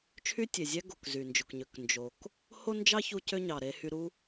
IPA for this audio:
t͡ʃʰ y˥ tʲ e˩ zʲ æ˥ ɡ o˩ k z y˩ n d͡ʒ o˩ k ɲ ø˩ k n d͡ʒ o˩ k | h o˥ n d͡ʒ ɑ˥ ç u˧ c ø˥ ɲ ɑ˩ ɾ e˧ h y˧ ɾ u˥

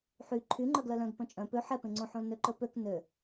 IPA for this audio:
ħ y ǃʰ y ŋ͡ǃ œ ɡ l œ l œ̃ ɡ p œ̃ t͡ʃʼ œ̃ p ø ħ ɛ p ẽ ŋ͡ǀ õ ħ õ l n ø ǃ ɵ p ø k n ø

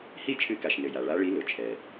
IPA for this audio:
h i˥˨ t͡ʃʰ ɨ˧˥ k a˩ ʃ n ɘ˩ j a˩ ɭ a˧˥ ɭ i˧˥ l ʊ˩ t͡ʃʰ ɛ˩

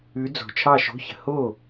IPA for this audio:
ʉ˨˦ d͡z o̤˨˩ t͡ʃʰ ɑ˥˨ ʃ o̤˧˥˧ ç ə̤˨˦ h oː˥˨

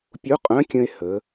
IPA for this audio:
pʲ u˧˥ qʼ œ̃˧˥ kʲ ə̃˧ e̯ h ə˩˧

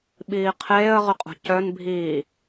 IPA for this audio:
ɓ iː qʰ eː ə̯ ʁ ʏ qʼ o̤ c œ n bʱ iː

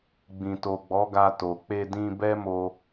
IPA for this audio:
ɡ͡b ĩ˨ t o˨ ɡ͡b ɔ˨˦ ɡ a˧ t o˨ k͡p e˧ d ĩ˧ b ɛ˦ m o˦

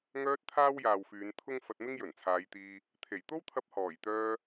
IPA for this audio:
ŋ œː˧ t̚ t̪ʰ aː˥ w j aː˨ w f yː˨˧ n t̪ʰ ʊ˥ ŋ f ɐ˧ t̚ m ɪ˥ ŋ j ɵ˨˩ n t͡sʰ aː˨˧ j t̪ iː˧ | t̪ʰ e˨˩ j t̪ o˥ w t̪ʰ ɐ˧ p̚ h ɔː˨˩ j t̪ œː˧

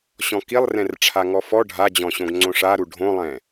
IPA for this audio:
ɕ ɔ̃ k i lˠ r ɛ̃ r ʈ͡ʂʰ a ŋ ɔ f ɔ ɖʱ a d͡ʑ ɔ̃ ɕ õ ɡ ŋ͡ǀ õ ʂ a ɾ u ɖʱ õ lˠ ɛ̃

